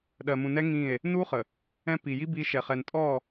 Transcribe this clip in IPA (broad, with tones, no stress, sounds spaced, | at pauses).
ɗ ɜ˨ m ũ˨ n ɛ˦ ŋ ĩ˦˨ e̯ | n u˦ χ ə˨ | ɛ̃˦ p i˨ j i˦ b i˦ ʃ ɛ˨ χ ɛ˨ n tʼ ɔ˦˨